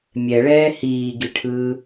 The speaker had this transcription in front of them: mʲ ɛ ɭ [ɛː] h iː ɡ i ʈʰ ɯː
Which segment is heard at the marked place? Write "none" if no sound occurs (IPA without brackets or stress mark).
ɛː